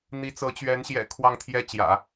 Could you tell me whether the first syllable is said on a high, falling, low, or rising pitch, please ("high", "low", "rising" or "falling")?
rising